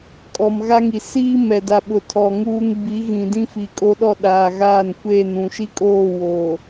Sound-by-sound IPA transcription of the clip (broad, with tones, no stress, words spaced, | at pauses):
kʼɔ˨mɣa˦ŋi˨ siː˦ mɛ˨da˨ɓʊ˨ tʰɔ˨ŋuː˦ŋ bi˨˦ɣĩ˨ dĩ˦fi˨kʼo˦ɗɔ˦˨ ɗaː˨ɣaː˦˨nkʷeː˦˨nũ˨ ʃi˦kʼoː˦˨ wo˨